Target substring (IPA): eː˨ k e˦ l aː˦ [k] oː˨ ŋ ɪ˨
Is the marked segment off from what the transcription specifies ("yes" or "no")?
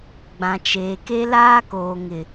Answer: no